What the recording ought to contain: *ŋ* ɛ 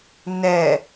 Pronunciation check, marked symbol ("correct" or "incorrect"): incorrect